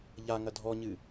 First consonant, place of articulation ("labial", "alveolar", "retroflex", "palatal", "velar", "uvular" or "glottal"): palatal